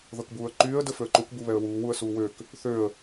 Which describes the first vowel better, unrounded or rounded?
unrounded